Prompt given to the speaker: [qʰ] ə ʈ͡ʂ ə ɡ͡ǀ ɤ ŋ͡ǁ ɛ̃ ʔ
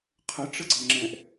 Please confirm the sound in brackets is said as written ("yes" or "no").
yes